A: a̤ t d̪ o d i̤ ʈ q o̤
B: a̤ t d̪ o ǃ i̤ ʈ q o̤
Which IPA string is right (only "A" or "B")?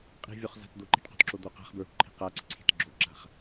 B